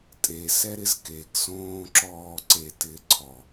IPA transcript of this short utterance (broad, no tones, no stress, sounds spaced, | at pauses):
tʼ e s ɛ ɾ ɪ z k e ɡ s õː ǁ ɔː ǀ e t ɪː ǀʰ ɔ